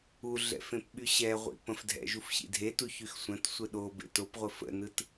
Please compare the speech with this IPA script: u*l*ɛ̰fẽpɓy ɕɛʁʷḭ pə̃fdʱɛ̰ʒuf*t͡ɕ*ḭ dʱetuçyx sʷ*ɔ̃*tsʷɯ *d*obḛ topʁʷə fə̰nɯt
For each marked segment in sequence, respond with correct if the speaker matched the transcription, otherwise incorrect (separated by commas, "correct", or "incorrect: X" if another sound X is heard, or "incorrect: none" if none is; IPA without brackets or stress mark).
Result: incorrect: ɮ, incorrect: ɕ, incorrect: ə̃, incorrect: ɗ